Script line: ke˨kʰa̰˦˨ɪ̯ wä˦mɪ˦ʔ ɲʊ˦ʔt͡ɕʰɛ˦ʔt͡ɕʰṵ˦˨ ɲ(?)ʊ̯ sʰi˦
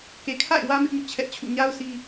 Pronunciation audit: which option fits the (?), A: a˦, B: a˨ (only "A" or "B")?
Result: A